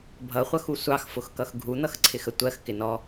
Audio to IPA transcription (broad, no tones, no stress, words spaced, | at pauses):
bʱʌχʷʌxu sʷɑxfʊxkʌx ɡʱun̪ʌxǀʰɪxə tʷɜxkɪnɔ